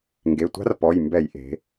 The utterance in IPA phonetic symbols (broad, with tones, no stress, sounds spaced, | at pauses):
ŋ ɡ e˩˧˩ tʷ a̤˦˥ r p ɔ˩˧˩ j m b ɛ˧˩˧ j ʔ e̤˩˧